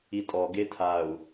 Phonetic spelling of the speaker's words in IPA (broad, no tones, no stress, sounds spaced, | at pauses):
i tʼ ɔ ɡ e tʰ a u̯